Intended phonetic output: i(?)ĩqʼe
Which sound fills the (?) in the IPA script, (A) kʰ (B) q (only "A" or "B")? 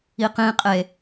B